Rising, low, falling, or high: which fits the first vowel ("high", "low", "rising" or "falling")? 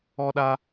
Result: high